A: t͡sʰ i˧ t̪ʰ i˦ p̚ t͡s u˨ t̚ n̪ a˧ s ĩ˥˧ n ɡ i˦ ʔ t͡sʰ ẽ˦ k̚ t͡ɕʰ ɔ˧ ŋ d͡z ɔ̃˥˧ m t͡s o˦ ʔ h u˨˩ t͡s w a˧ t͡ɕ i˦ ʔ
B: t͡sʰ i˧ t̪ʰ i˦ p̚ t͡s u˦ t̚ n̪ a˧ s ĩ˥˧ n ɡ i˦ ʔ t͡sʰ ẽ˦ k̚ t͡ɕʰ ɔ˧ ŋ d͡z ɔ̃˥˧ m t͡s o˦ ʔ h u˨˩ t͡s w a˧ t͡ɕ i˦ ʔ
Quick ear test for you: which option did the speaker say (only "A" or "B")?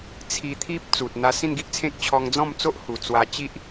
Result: A